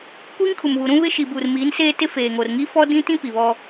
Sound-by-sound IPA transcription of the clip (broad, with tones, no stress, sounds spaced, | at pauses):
kʷ iː˦ ŋ kʰ u˨ m β u˨ ɾ ũ˦ β ɪ˦ ʃ i˨ b uː˨ r m iː˨˦ n s eː˦ t ɪ˦ f eː˨ ŋ o˨ r ŋ i˦ f ɔ˦ d ĩ˦ t ĩ˦ p i˨ β ɔ˦